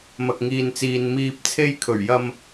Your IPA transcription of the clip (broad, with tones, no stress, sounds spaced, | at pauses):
m ɐ˨ k̚ ŋ iː˨ n t͡s iː˨ n m iː˨ p̚ t͡sʰ e˧ j kʰ ɵ˨˩ ɥ j ɐ˧ m